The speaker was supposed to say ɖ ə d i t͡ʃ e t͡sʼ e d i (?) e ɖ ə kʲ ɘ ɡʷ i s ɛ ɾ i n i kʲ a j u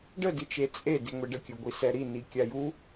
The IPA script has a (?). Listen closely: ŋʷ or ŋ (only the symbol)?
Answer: ŋʷ